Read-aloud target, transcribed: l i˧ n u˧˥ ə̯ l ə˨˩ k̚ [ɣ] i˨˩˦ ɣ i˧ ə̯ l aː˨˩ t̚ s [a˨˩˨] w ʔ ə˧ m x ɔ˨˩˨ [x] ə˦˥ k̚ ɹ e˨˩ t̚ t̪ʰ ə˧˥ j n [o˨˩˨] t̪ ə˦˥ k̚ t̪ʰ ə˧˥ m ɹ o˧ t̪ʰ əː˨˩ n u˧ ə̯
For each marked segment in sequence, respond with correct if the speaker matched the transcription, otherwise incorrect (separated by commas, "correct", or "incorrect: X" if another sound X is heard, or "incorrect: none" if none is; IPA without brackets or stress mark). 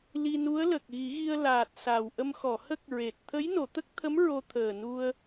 correct, incorrect: a˨˩, incorrect: h, correct